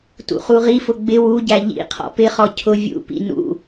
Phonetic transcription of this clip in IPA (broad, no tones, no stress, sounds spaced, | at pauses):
t ṵ χ u ʁ i f ʊ ɡ͡b ɪ w u ɟ æ ʎ ḭ qʰ ɔ̰ p ɪ χ ɔ cʰ ʊ vʲ ṵ p ḭ n ṵ